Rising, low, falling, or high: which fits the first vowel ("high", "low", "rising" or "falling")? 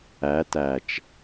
rising